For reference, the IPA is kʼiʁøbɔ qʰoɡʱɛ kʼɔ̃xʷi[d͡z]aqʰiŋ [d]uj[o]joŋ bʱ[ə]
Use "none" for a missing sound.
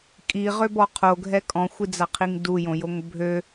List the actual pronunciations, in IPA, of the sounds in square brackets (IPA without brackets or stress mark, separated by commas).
d͡z, d, õ, ø